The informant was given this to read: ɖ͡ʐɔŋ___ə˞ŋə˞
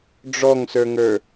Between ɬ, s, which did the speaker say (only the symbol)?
s